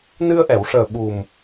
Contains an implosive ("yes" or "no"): yes